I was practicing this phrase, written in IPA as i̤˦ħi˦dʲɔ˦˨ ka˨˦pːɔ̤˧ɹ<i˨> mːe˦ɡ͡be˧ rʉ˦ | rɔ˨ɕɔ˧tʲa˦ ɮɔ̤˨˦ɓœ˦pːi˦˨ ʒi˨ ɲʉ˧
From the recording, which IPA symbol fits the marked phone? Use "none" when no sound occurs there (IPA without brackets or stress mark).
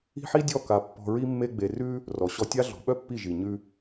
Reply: i˦